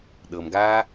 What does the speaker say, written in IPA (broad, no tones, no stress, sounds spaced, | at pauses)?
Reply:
ɗ ɤ m ɡ aː